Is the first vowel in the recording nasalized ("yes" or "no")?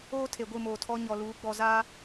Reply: no